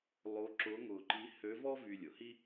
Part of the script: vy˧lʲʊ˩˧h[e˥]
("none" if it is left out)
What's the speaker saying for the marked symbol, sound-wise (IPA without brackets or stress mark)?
i˥